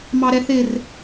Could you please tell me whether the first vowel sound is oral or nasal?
oral